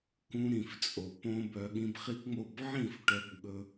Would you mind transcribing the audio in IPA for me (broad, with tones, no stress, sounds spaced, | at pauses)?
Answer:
k ũ˧ ɾ ĩ˨ f t͡sʼ o˨ p õ˦ b œ˧ ɠ ĩ˧ b χ i˦ k ŋ͡m o˦˨ b ʕ ĩ˦˨ f ʈ œ˧ b ɠ ɵ˧